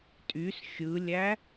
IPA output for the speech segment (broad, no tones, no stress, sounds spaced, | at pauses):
tʼ y s xʲ ɯ lʲ æ